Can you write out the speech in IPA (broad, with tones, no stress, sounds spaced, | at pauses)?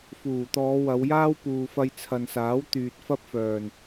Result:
f uː˨˩ t̪ ɔː˨˧ w ɐ˨˧ w j aː˥ w p uː˨ f ɐ˧ j t͡sʰ ɐ˨ n s aː˨˥ w t̪ yː˨ t̚ f ɐ˥ p̚ f œː˨˩ n